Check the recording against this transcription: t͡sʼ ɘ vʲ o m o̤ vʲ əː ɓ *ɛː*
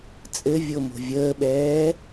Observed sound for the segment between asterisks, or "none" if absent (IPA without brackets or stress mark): ɛː